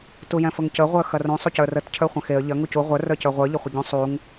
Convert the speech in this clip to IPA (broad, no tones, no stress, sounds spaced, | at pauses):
t u j ɛ̃ f ə ŋ c ə ʁʷ ə˞ x ɐ r ũ sˤ u c ə˞ r ə t cʰ ə˞ χʷ ɐ̃ x e ə̯ ʎ ɐ ŋ u c u ʁʷ ə˞ r ə˞ c ə˞ ʁʷ ə˞ ʎ ə χʷ ə ɟ ũ sˤ u ŋ